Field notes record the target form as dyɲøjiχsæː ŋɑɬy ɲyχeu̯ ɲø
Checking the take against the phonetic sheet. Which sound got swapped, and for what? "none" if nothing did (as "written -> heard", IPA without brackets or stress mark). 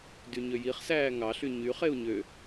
none